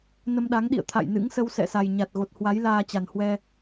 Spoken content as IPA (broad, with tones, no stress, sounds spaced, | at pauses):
n ə˧ m ɗ a˨˦ ŋ ɗ ḭ˧˨ ə̯ t̪ʰ a̰˧˨ j n ɨ̰˧˥ ŋ s ə˧ w s ɛ̰˧˨ s a˨˩ j ɲ a˨˩ t̚ ɣ o˨˩ t̚ h w a˨˦ j l aː˧ t͡ɕ a˨˩ n h w ɛ˧